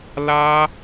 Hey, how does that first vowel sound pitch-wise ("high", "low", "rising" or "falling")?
high